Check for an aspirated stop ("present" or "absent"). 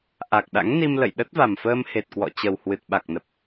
absent